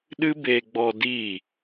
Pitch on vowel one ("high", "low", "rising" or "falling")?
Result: high